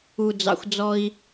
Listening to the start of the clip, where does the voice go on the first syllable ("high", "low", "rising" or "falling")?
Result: low